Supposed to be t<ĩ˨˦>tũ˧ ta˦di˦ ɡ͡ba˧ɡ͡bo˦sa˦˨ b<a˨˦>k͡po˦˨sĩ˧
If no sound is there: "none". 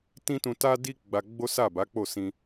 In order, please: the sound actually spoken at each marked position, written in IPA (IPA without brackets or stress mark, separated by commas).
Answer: ĩ˦, a˨˦